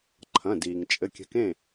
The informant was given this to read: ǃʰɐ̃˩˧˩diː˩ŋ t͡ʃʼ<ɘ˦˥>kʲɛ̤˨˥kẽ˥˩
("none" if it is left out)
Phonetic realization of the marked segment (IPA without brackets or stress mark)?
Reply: ɘ˩˧˩